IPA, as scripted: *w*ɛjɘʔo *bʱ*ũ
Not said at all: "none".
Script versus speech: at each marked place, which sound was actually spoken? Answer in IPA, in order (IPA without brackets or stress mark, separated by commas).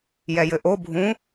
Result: j, bʱ